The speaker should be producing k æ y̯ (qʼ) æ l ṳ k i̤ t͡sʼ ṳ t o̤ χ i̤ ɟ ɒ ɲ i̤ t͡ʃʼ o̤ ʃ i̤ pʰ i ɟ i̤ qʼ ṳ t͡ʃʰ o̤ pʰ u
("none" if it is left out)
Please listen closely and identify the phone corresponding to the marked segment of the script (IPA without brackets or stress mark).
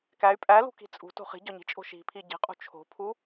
pʼ